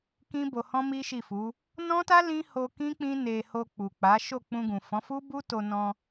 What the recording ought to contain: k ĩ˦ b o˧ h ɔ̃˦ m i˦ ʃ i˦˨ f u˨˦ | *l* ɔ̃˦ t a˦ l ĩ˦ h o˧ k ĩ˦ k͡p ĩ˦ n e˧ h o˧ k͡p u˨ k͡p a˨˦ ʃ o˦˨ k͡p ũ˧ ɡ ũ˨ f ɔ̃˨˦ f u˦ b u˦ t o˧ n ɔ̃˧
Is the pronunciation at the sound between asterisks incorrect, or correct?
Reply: incorrect